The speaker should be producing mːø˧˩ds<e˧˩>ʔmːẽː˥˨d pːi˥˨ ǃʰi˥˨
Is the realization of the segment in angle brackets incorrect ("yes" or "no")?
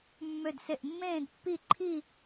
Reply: no